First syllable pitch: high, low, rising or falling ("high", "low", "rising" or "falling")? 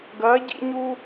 rising